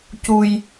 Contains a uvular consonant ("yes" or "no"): no